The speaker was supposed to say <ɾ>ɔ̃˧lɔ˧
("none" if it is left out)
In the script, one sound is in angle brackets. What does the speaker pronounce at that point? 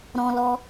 ɾ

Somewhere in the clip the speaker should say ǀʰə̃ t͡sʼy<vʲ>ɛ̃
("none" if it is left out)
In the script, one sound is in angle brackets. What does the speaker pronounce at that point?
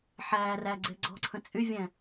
vʲ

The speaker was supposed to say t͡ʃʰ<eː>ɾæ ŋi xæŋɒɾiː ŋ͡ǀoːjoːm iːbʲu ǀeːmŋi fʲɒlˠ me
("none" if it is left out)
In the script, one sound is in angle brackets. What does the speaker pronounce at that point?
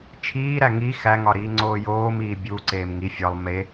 iː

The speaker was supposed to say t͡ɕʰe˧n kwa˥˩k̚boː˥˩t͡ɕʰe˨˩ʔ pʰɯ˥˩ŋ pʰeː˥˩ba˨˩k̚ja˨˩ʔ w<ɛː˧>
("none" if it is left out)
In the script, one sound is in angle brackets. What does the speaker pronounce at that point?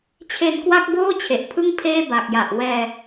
ɛː˧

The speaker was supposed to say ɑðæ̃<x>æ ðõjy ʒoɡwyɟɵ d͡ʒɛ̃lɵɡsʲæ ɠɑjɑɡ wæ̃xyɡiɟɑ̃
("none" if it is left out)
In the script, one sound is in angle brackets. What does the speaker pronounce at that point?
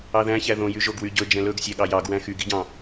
ç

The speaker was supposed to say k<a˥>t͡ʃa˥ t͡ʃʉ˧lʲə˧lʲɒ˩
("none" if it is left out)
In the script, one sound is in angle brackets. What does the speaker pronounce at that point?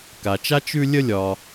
a˩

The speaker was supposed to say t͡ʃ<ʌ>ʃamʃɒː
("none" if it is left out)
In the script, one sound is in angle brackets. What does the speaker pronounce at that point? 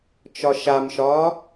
ɒ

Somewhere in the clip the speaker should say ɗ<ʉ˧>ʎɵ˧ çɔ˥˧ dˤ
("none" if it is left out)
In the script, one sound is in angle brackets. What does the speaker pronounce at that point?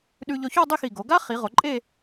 ʉ˧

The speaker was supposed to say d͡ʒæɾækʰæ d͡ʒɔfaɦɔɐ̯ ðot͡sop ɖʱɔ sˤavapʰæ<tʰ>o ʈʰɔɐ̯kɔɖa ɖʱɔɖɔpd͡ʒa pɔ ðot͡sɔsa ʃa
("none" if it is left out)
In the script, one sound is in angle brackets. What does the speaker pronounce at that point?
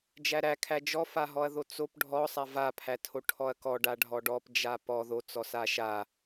tʰ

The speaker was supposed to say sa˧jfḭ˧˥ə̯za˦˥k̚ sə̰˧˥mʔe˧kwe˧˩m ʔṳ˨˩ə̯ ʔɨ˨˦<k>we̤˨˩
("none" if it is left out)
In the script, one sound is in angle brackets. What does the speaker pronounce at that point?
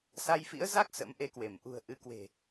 k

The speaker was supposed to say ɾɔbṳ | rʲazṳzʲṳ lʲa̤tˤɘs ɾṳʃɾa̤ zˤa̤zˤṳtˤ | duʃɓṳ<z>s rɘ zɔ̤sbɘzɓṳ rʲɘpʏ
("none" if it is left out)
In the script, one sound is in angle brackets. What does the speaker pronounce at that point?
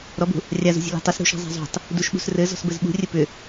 none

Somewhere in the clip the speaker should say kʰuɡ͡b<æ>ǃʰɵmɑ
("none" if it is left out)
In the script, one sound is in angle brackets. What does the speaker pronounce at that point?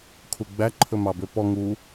æ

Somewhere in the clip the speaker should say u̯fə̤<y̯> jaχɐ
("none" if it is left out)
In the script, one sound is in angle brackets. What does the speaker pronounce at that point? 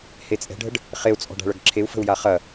u̯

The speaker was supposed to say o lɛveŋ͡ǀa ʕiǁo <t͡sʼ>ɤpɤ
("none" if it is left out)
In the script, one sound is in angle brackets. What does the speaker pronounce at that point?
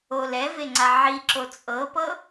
t͡sʼ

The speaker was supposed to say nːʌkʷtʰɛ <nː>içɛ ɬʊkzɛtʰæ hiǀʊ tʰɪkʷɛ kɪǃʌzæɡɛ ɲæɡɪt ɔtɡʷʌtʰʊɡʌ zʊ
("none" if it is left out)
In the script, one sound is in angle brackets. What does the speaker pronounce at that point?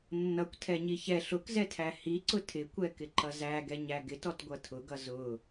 ɲ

